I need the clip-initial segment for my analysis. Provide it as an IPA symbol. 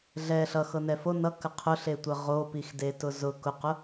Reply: ɮ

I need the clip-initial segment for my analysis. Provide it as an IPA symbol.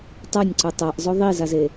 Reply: tˤ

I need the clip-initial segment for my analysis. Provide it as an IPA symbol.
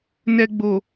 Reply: n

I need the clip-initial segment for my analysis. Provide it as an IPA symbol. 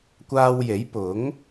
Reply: kʷ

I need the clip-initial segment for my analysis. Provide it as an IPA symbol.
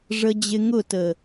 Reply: ʐ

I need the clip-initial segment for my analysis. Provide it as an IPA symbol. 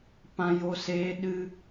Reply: p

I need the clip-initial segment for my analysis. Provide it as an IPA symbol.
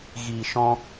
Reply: ɣ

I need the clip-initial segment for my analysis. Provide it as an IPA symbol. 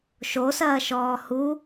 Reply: ʃ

